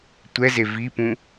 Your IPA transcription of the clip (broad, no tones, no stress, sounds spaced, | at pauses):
tʷ ɛ z e v i p ũ